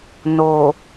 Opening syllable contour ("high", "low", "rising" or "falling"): low